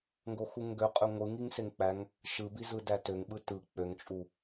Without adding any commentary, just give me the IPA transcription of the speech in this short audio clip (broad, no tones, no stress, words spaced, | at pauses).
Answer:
ŋɡoxuŋɡø qʼøŋʷɯŋiŋ seŋk͡pæŋ | ʃɯbi zɯdætøŋɓɯ tɯ k͡pøŋt͡ʃʼu